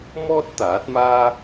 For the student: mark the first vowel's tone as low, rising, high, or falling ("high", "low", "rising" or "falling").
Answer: high